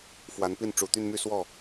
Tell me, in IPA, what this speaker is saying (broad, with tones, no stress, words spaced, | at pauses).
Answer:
fwa˨˦npi˥˨n ʈ͡ʂu˨˩t̪y˥˨nmy˥˨ swɔ˥˨